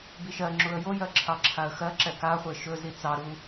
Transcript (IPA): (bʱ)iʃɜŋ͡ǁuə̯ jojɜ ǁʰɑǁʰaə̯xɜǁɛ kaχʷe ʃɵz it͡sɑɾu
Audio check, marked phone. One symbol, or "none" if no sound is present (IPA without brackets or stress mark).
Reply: b